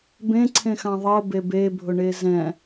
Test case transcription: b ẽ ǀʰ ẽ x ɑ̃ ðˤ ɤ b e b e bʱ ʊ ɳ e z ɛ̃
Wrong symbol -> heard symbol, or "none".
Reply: none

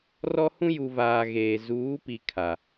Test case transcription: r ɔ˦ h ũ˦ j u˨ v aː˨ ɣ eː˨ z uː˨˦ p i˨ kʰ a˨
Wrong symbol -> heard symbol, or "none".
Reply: none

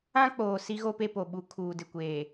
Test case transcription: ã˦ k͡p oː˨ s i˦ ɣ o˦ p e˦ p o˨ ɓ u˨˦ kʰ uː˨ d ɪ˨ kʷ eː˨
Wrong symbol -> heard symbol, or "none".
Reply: none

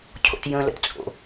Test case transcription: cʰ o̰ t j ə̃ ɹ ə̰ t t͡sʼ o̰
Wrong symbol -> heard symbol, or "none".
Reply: ɹ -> l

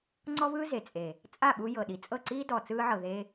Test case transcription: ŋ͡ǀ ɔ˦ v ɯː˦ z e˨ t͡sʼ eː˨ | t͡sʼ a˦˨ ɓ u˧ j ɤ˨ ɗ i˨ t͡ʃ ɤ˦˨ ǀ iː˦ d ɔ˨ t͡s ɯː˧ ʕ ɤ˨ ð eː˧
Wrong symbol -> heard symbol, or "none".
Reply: t͡ʃ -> t͡sʼ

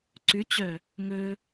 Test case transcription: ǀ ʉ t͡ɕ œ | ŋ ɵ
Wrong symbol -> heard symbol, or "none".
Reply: none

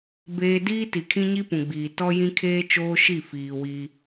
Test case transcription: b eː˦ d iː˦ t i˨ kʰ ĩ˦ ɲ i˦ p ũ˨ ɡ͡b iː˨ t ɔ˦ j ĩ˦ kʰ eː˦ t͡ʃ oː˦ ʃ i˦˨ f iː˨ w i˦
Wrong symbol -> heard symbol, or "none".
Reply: none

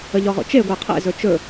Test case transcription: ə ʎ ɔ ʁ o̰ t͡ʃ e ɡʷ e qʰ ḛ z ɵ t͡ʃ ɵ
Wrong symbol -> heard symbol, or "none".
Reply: none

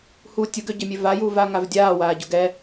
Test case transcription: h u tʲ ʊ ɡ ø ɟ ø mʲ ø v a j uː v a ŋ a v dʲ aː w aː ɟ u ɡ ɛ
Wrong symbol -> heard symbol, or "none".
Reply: none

